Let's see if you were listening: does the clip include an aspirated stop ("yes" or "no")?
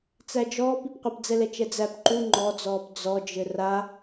no